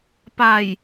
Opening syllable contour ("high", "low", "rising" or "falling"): low